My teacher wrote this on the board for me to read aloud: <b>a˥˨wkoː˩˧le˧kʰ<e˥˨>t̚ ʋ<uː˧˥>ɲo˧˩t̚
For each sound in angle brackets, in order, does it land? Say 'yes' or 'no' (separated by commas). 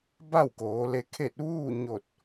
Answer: yes, yes, no